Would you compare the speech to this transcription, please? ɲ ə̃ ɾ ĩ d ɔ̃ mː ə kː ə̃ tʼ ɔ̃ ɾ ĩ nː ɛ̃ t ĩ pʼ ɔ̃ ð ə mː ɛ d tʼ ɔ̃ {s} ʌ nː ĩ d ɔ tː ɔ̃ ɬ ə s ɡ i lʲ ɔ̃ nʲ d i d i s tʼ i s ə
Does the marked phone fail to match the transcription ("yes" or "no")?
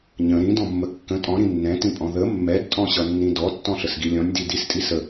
yes